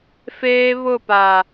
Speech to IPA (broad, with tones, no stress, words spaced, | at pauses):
feː˦ βʊ˦˨pa˨